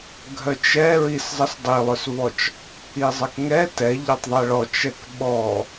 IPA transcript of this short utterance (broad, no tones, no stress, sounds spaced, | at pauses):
ɡʱ œ t͡ʃ ɛ ɹ i s zˤ ə s dˤ i lˠ œ s v ɔ t͡ʃ | i zˤ ə k ŋ ɛ t ɛ ʎ ɔ tˤ ðˤ ɛ ɭ ɔ t͡ʃ ɛ k ɓ ɔ